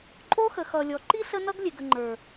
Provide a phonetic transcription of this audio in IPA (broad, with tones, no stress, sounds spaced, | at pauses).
ǃʼ o˦ x ə˨ x ʌ˨ lʲ ɔ˨ ǃ i˦ ɬ ə˦ n ʌ˦ ɡ lʲ e˨ ɡ ə˨ ŋ͡ǃ ə˞˨